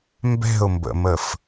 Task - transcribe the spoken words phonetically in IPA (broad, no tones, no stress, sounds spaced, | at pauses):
m b ɛ̤ ʊ̯ m b ə̰ m ə f